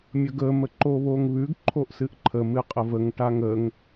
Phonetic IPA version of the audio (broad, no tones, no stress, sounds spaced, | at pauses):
mʲ ə ɡ ə m ə ǃ o β o ŋ β ʉ ɡ ǃʰ o ʔ s ɨ ʔ ǃʰ ə m ɨ qʼ ə v ə ŋ ʈ a ŋ ə ŋ